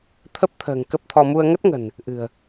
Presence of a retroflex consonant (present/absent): absent